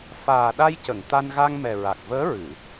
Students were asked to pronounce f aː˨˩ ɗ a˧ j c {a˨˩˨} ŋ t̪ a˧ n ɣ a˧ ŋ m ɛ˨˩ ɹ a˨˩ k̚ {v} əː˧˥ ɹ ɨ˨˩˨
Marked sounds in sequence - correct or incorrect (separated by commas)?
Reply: incorrect, correct